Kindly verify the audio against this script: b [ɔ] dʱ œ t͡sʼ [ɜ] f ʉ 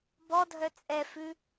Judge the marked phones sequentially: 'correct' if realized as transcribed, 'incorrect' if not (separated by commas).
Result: correct, incorrect